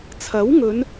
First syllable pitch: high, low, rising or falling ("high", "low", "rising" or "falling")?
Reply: rising